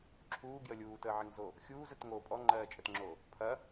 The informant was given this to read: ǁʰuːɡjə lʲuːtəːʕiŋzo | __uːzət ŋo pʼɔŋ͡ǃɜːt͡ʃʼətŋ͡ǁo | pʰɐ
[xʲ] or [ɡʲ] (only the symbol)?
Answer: xʲ